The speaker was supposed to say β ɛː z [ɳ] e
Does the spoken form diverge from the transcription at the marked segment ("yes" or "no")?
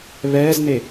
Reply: yes